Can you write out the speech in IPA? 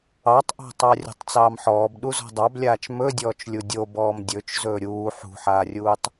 ɑ tˤ ʔ ɑ̤ tˤ ɑ rʲ o̤ tˤ t͡s ɑː m ħ ɔː b ɗ u z ɔ̤ dˤ ɑ b lʲ aː t͡ʃ m ɵ dʲ ɔː t͡ʃ lʲ u dʲ o b ɔː m dʲ ɵ t͡ʃ z ɵː ɾʲ uː ħ ṳ ħ aː rʲ uː tˤ

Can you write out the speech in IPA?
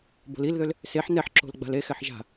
b o̤ l i l ð ø l | s e ħ n ɛ ħ ǁ o̤ l ɡ͡b a̤ l e x ɛ ħ ʒ a̤

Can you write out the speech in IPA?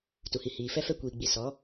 t u˨ h i˨ h iː˨ f ɛ˦ f ɛ˦ kʷ iː˨ ɡ͡b i˨ s ɔ˨˦

